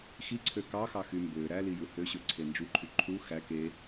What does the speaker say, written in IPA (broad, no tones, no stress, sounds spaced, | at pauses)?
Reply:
x i ǀʰ ø k ɑ x ɑ x y m b ø ɾ æ l i j ɯ h ø ɕ ø ǀʰ e n d͡ʒ u ǃʰ y ǃʰ u x æ k e